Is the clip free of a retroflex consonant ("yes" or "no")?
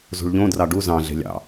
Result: no